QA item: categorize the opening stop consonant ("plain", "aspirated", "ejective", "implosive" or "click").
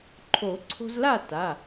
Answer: click